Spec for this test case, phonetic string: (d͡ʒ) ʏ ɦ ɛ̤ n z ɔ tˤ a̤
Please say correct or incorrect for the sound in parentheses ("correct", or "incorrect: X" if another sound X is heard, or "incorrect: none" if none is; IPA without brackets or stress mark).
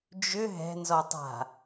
correct